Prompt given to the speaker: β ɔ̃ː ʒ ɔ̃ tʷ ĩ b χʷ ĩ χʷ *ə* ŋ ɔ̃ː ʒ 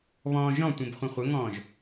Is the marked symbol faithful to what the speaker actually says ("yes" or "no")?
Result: yes